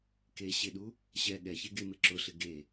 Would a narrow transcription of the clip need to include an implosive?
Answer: yes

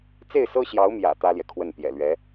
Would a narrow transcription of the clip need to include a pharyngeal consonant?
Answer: no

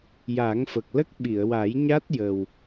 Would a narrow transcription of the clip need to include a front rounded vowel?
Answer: no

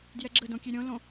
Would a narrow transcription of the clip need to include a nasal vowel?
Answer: yes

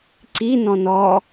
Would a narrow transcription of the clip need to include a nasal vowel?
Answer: yes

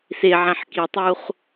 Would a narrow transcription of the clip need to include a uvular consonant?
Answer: yes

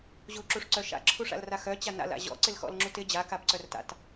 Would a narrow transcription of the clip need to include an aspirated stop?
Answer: yes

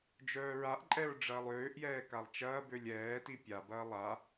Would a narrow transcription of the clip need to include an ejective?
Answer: yes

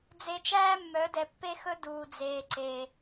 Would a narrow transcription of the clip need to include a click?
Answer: yes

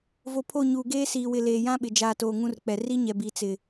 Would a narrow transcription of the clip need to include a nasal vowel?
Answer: yes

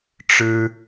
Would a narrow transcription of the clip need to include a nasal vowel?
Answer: no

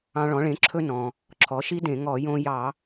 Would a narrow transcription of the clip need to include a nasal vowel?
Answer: yes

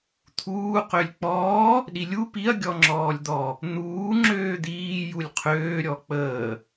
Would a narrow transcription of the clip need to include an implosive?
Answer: yes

